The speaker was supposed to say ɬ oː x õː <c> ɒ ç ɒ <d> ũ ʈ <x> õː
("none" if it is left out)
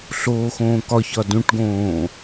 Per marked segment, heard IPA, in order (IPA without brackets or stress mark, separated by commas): k, d, ɡ